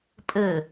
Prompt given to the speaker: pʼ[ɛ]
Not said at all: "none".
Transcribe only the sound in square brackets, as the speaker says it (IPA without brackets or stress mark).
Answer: ɘ